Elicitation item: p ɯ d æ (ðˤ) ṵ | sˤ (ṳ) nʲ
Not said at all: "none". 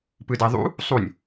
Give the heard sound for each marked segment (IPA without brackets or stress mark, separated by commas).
ðˤ, u